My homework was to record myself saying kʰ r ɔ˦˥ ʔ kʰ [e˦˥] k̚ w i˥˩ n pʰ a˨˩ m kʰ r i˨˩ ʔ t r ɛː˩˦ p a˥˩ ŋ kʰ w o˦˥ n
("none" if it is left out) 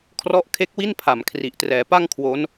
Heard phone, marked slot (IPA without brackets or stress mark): e˦˥